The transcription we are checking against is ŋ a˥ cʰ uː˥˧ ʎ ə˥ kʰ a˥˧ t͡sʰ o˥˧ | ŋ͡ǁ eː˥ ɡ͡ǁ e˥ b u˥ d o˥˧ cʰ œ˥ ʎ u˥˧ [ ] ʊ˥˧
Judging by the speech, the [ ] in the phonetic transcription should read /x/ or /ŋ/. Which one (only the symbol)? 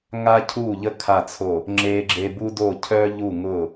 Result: ŋ